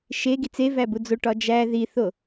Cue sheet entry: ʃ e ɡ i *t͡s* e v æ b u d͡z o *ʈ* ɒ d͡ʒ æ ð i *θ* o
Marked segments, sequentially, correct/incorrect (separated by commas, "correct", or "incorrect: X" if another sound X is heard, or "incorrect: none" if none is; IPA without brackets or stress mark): correct, correct, correct